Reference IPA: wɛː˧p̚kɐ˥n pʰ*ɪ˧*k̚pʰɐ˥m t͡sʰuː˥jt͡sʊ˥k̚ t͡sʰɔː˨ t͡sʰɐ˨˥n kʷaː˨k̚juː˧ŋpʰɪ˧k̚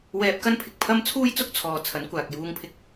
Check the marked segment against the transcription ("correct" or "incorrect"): incorrect